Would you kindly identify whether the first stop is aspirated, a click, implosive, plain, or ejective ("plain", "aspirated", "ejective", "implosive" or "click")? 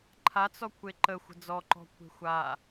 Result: click